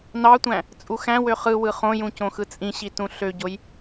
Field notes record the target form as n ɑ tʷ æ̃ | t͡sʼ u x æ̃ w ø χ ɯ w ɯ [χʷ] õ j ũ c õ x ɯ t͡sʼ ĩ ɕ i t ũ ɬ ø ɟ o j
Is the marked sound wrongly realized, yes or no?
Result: yes